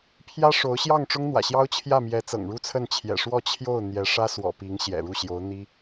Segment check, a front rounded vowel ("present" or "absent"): absent